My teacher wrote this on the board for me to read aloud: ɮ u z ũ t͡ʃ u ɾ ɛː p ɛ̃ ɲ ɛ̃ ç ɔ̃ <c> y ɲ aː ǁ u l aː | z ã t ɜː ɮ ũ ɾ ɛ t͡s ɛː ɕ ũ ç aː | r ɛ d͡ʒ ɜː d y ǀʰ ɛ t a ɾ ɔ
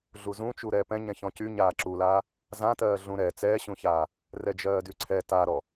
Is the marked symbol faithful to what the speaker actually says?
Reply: yes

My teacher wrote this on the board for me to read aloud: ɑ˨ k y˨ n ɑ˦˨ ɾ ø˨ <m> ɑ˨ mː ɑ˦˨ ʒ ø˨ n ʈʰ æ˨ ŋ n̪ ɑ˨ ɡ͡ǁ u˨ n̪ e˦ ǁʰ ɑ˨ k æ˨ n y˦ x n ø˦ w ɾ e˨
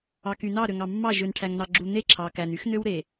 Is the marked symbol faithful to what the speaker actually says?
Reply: no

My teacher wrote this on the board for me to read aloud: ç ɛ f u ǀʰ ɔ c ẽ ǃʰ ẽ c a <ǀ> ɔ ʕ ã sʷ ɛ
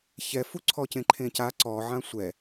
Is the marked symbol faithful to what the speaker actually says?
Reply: yes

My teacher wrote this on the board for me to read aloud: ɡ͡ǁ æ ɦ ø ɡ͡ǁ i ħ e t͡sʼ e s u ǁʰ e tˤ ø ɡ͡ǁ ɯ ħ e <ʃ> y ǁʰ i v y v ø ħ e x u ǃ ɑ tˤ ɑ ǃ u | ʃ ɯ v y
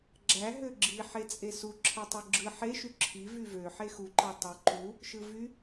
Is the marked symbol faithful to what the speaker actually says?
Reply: yes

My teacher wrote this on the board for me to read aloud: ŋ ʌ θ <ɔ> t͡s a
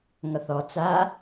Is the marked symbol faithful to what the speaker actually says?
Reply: yes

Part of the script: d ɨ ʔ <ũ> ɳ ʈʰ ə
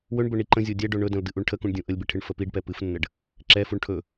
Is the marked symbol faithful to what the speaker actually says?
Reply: no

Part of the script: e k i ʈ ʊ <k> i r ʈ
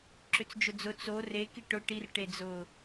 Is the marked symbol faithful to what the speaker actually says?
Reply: no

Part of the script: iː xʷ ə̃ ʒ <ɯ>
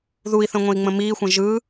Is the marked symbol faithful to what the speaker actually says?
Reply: yes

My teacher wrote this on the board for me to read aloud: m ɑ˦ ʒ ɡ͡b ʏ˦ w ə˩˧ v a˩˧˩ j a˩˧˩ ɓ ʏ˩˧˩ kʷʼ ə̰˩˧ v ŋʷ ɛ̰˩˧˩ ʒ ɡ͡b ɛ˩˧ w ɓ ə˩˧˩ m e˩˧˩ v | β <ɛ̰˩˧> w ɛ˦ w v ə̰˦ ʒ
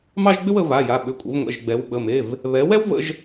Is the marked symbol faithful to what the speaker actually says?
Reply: no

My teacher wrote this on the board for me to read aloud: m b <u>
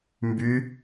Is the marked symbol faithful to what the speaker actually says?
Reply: no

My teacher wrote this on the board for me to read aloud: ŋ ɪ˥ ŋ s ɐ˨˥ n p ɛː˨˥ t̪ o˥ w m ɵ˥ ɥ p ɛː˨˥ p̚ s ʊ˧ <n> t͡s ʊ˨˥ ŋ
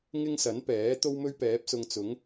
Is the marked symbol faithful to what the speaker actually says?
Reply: no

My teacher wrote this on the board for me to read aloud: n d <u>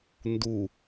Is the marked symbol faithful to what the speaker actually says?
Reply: yes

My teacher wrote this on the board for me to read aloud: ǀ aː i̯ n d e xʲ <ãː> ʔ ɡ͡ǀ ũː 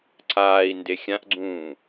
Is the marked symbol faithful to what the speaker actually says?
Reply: no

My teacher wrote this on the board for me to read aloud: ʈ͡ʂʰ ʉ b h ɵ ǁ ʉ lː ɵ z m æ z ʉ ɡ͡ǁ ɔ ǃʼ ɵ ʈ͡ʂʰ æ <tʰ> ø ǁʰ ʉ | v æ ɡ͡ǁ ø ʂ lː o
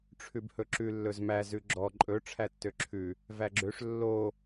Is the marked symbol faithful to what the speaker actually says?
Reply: no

